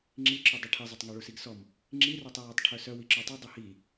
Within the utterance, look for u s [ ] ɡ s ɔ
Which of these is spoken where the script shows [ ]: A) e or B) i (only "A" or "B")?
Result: B